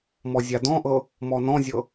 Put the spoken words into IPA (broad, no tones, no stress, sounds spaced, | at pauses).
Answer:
m ɔ zʲ a d ɔ̃ ʔ ɤ | m ɔ n ɔ̃ zʲ ɤ